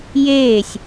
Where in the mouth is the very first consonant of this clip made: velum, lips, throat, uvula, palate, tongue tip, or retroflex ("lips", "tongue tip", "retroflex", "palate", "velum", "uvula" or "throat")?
palate